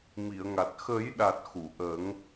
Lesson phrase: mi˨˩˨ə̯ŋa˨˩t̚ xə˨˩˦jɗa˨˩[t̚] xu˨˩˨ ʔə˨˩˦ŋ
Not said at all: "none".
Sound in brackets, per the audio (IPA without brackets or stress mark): t̚